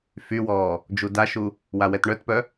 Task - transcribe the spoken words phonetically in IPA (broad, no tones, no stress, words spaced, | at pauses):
fywɔː | d͡ʒudaʃu | wawɛtɳœtpœ